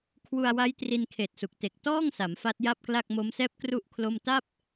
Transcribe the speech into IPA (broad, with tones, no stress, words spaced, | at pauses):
kʰwu˧a̯wa˦˥j tri˧nkʰeː˨˩t̚su˨˩k̚ te˨˩k̚tɔː˥˩ŋsa˩˦m fa˦˥t̚ja˥˩p̚kla˥˩k̚ mo˦˥msɛː˥˩p̚kru˥˩ʔ kʰlo˥˩m ta˥˩p̚